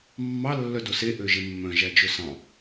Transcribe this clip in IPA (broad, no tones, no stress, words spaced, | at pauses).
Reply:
mːɑ lːœdose ʔøʒemːœ̃ ʒæd͡ʒɵsɑ̃